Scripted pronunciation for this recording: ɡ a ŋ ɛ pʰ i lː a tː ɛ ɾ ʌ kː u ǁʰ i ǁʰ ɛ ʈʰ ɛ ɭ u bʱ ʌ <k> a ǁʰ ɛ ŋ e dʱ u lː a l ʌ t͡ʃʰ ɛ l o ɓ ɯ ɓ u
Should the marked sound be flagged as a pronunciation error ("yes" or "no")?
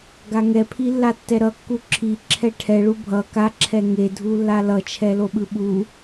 no